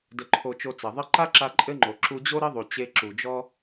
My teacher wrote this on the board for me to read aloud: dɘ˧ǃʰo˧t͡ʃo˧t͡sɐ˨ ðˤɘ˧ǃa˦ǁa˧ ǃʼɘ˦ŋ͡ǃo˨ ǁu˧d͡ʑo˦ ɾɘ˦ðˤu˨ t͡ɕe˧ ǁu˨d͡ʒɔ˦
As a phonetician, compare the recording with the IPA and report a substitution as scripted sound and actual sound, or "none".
none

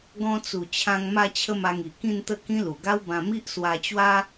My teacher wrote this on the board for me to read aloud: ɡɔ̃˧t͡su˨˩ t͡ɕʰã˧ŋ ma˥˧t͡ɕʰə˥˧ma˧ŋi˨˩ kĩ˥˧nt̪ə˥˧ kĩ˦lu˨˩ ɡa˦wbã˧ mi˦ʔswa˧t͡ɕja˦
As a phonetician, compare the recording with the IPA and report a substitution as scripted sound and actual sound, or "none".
j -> w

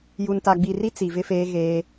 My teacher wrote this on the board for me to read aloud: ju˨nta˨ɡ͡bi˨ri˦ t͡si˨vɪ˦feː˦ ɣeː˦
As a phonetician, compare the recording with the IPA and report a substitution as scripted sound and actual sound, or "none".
none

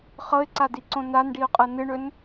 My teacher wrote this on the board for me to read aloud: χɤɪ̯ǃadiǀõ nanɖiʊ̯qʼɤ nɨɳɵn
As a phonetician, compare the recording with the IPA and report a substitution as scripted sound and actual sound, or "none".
ǃ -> ǀ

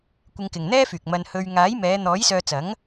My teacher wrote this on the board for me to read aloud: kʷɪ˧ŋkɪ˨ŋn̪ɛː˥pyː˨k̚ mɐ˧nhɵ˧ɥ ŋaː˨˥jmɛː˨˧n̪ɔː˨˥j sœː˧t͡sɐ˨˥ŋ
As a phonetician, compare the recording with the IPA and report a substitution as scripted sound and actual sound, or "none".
p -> f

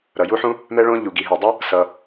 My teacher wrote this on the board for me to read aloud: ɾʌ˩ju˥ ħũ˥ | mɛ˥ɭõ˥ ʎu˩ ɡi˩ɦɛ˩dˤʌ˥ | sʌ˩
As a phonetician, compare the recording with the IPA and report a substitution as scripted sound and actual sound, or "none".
none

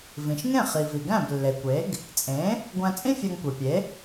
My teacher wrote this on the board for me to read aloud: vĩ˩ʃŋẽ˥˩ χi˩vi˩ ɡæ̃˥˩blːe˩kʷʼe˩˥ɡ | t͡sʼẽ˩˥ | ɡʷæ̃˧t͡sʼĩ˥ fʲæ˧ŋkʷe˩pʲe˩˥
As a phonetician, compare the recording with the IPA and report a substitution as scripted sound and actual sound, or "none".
kʷʼ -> kʷ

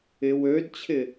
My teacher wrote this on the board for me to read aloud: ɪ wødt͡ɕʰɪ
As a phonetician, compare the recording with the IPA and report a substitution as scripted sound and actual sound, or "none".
none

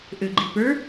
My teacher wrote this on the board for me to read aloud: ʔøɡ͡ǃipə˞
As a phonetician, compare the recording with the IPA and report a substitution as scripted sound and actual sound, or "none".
none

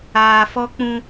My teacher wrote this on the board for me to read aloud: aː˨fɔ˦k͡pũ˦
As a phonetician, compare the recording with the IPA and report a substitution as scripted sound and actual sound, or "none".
none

